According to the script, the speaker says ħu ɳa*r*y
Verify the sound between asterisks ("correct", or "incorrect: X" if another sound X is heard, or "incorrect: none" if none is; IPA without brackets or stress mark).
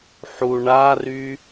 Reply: correct